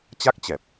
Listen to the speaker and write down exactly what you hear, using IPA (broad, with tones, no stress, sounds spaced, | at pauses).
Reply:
t͡ɕ a˦˥ k̚ t͡ɕ ɛ˨˩ p̚